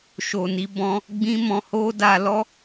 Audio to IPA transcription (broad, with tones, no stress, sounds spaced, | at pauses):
ʃ o˨ n i˨˦ b ɔ̃˧ | ɡ͡b ĩ˦ m ɔ̃˧ h o˦ d a˧ l ɔ˦